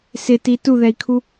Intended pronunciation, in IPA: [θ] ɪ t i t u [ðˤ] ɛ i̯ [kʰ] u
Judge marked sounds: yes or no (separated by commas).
no, no, yes